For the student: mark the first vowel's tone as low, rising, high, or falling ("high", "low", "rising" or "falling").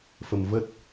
low